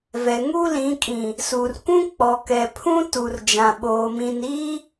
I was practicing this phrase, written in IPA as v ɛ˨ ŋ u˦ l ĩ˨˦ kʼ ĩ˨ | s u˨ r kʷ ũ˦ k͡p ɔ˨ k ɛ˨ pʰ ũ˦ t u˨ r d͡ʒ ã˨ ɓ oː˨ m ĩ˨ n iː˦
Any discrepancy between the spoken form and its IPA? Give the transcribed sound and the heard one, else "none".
none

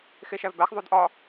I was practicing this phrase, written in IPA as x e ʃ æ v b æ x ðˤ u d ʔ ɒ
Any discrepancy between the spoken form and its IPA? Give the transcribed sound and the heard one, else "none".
none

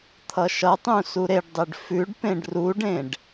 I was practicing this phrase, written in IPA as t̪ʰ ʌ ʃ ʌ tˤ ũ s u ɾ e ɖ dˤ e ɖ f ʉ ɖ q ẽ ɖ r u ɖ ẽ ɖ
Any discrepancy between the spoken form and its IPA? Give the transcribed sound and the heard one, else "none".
q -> p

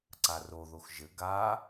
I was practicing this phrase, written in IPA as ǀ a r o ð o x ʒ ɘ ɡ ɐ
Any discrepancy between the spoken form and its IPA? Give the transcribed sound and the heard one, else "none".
ɐ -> a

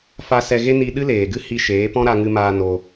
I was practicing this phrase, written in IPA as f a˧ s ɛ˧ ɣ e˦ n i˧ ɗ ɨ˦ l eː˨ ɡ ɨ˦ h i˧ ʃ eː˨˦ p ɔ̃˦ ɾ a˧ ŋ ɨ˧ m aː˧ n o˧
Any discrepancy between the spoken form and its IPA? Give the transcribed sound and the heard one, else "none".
none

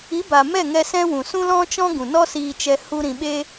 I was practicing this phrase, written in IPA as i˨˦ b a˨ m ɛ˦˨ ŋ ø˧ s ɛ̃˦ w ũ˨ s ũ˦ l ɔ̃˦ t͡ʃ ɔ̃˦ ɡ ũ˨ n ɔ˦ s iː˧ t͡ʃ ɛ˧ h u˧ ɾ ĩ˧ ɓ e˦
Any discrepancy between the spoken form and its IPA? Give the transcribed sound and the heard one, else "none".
ø˧ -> ɛ˧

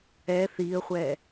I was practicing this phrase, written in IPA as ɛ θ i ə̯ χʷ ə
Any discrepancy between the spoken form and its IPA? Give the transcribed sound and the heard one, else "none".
ə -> ɛ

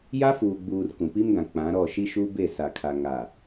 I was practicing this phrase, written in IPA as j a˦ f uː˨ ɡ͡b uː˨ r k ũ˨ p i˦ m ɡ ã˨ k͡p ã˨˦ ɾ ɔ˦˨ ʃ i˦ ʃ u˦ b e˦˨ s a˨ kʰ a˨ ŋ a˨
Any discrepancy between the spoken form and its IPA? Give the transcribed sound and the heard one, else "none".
none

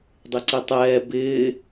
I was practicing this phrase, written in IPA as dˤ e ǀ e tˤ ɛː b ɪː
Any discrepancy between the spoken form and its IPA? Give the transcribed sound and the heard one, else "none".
none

